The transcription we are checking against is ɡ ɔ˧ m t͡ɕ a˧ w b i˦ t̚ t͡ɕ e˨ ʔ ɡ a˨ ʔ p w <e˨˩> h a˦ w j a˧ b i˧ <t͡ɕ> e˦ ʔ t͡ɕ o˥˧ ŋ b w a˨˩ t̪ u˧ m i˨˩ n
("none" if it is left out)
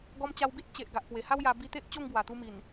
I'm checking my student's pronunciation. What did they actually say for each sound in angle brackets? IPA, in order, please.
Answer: e˨˩, t̪

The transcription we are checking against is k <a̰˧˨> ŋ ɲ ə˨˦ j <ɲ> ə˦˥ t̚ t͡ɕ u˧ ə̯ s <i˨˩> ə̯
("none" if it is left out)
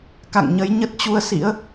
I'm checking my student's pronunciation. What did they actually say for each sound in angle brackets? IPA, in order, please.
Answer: a̰˧˨, ɲ, ḭ˧˥

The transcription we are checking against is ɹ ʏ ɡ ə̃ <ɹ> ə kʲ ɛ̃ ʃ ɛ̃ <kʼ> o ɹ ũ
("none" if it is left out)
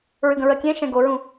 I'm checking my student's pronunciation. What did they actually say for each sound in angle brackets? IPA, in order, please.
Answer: ɹ, ɡ

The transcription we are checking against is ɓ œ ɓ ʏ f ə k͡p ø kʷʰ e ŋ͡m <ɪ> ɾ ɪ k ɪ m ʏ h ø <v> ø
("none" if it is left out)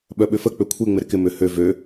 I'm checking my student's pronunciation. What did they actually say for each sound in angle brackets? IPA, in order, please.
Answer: ɪ, v

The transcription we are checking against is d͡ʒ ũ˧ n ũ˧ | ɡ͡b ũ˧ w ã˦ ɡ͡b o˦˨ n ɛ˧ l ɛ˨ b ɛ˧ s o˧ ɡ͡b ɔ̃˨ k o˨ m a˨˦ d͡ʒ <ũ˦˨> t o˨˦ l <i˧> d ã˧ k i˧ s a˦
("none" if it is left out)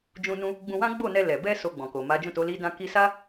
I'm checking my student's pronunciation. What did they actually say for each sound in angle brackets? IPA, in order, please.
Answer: ũ˦˨, i˧

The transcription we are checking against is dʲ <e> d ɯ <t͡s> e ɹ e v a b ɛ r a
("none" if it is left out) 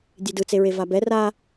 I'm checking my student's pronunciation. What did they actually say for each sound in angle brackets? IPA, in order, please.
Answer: e, t͡s

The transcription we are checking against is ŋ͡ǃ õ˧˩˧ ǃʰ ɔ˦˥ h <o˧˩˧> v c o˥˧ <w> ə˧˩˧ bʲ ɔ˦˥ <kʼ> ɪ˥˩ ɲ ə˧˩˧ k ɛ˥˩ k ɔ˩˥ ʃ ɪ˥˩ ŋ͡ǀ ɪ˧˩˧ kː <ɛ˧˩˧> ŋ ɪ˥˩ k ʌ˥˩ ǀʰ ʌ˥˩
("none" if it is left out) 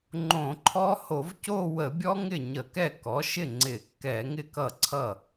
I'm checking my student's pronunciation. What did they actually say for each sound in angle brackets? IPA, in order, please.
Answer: o˧˩˧, w, ŋ, ɛ˧˩˧

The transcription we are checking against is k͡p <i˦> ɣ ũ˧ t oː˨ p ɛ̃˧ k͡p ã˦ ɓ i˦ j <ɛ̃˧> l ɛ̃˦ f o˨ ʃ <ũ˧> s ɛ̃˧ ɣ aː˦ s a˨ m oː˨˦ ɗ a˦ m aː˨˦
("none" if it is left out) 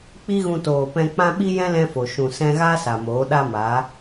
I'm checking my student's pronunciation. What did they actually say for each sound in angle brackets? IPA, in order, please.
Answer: i˦, ɛ̃˦, ũ˨

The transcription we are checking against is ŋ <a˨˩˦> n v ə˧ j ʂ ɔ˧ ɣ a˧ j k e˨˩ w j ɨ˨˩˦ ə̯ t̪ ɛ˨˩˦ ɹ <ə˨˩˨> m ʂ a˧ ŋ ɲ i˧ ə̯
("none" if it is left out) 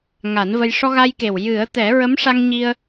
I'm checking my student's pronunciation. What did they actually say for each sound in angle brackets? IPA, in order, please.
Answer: a˨˩˦, ə˧˥

